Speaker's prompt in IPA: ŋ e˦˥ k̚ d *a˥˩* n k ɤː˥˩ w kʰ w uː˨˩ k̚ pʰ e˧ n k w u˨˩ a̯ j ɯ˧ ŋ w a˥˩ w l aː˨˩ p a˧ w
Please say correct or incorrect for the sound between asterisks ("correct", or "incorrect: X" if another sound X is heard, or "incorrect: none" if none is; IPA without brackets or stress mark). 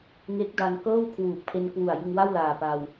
incorrect: a˧